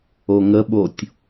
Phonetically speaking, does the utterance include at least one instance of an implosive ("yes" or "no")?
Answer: yes